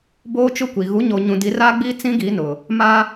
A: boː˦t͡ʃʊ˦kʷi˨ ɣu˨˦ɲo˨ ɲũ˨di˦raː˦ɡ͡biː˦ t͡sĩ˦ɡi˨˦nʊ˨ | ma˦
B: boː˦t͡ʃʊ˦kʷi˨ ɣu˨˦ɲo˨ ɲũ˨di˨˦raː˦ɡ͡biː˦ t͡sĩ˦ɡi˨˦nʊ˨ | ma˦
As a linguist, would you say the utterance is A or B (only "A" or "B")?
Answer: B